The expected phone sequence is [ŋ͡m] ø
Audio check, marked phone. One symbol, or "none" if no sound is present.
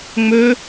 ŋ͡m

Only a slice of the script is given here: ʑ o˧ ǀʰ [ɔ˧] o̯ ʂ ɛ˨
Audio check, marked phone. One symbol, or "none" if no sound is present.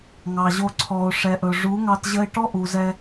ɔ˨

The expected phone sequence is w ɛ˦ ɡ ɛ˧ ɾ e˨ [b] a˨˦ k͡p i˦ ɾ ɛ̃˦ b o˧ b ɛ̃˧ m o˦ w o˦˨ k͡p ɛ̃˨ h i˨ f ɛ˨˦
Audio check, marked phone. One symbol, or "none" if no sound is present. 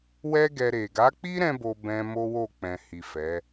ɡ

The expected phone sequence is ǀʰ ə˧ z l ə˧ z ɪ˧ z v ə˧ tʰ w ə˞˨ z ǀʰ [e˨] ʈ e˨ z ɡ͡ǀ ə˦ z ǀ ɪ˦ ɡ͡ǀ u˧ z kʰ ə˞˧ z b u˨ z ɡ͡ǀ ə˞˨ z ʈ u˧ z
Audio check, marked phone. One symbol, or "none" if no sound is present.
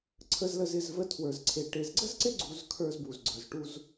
e˨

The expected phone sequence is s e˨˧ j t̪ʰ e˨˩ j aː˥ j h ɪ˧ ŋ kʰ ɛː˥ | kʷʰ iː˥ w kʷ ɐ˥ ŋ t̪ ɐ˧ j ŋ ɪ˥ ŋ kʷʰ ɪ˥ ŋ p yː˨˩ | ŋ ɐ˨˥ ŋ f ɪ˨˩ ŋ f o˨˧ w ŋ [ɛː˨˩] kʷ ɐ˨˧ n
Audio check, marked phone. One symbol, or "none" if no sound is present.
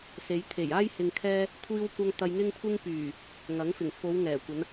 ɛː˨˩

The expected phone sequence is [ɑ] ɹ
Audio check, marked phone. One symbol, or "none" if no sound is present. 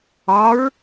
ɒ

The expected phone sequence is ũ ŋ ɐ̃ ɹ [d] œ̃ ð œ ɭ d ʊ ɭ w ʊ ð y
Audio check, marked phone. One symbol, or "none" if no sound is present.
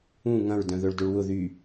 d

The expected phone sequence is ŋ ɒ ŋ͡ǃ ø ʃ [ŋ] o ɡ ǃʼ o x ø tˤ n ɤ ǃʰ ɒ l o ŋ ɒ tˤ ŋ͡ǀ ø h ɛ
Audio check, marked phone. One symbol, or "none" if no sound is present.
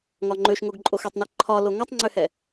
ŋ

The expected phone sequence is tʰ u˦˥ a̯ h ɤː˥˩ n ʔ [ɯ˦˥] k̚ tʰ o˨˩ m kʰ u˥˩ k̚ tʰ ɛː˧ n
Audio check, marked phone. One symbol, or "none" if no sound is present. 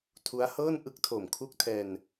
ɯ˦˥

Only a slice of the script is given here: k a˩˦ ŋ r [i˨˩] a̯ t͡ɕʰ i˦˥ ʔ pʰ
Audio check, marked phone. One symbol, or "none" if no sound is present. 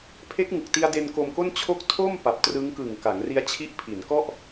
i˦˥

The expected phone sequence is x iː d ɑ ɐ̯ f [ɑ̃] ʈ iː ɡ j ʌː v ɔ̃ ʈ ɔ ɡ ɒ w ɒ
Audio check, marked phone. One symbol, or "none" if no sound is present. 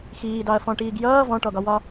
ɔ̃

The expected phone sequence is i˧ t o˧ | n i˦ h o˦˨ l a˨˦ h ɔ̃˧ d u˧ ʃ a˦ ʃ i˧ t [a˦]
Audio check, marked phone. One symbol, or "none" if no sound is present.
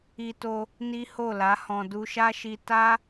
a˦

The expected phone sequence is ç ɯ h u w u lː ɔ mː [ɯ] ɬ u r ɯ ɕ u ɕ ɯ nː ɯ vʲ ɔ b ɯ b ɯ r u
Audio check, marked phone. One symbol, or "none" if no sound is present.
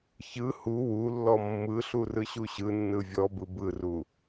ɯ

